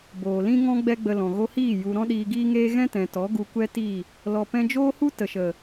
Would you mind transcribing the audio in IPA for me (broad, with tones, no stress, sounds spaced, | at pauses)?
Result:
b oː˨ l ĩ˦ ŋ ɔ̃˦ ɡ͡b ɛ˦ ɡ͡b ə˧ l ɔ̃˨ ɣ o˧ h iː˦˨ j u˨ ɾ ɔ̃˦ ɗ iː˧ ɡ iː˦ ŋ eː˦ ɣ ɛ̃˦ t ɛ̃˨ t ɔ˨˦ ɡ u˧ kʷ ɛ˦ t i˦˨ | l ɔ˨ p ɛ̃˧ d͡ʒ oː˦ h u˦ t ə˨ ʃ ə˨